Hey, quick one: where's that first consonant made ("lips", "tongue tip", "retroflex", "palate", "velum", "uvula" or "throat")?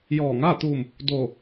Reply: palate